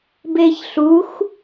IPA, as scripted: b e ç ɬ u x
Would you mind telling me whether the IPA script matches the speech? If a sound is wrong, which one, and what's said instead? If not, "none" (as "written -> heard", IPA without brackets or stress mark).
none